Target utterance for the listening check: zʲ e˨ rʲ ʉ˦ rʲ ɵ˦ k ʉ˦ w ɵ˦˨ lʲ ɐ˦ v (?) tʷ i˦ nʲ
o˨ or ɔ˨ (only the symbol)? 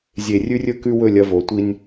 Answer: o˨